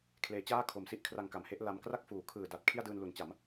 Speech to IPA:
kʰ l eː˩˦ t͡ɕ aː˥˩ kʰ o˩˦ m s i˦˥ ʔ kʰ r a˧ ŋ k a˩˦ m h e˦˥ ʔ l a˧ m k r a˥˩ k̚ f uː˩˦ kʰ ɯː˨˩ d a˨˩ t̚ kʰ i˥˩ a̯ d ɯː˧ n l u˩˦ n t͡ɕ a˩˦ m

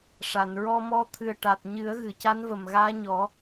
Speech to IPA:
ʂ a˨˩˨ n ɹ ɔ˧ m ɔ˧˥ t̪ʰ ɨ˨˩ ə̯ ʈ a˨˩ t̚ ɲ ɨ˨˩˦ ə̯ ɣ ɨ˨˩˨ c a˧˥ n v ə˨˩ m ɣ aː˧˥ ɲ ɔ˨˩˦

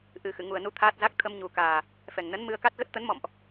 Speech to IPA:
ʔ ɨ˨˩ x ɨ̰˧˨ ŋ u˨˩ ə̯ n u˨˦ t̪ʰ aː˦˥ t̚ z a˦˥ k̚ t̪ʰ ə˧ m ɲ u˨˩ k aː˨˩ | f ɛ˨˩ ŋ n ə˨˦ n m ɨ˧ ə̯ k a˦˥ t̚ ɣ ə˦˥ t̚ t̪ ə˨˦ n m ɔ̰˧˨ m ʔ

